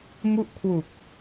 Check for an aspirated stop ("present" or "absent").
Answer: present